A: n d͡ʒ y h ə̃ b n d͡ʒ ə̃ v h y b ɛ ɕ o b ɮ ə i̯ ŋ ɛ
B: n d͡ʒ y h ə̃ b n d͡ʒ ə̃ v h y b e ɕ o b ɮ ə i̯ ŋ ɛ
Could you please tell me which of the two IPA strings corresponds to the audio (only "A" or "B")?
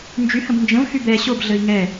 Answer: A